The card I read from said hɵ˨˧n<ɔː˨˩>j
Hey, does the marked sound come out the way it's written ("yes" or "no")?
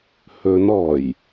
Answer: yes